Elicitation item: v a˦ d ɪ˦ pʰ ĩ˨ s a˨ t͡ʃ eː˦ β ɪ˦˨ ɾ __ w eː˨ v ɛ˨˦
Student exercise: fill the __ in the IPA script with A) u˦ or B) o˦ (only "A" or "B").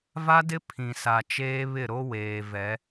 B